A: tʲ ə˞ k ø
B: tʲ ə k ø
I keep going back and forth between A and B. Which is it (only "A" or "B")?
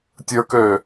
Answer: A